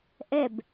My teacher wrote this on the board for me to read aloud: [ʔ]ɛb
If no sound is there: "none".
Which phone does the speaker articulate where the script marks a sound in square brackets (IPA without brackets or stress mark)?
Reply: ʔ